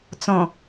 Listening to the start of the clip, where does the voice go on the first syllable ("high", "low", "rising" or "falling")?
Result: low